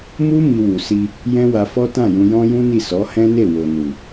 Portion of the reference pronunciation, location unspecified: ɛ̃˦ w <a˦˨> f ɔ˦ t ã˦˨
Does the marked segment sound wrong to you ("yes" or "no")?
yes